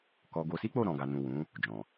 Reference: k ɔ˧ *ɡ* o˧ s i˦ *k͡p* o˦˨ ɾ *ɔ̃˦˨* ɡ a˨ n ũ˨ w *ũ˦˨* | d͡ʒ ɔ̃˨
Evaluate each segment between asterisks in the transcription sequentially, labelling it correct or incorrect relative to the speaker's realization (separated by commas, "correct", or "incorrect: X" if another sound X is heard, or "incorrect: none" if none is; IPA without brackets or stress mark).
correct, correct, incorrect: ɔ̃˨, incorrect: ũ˨˦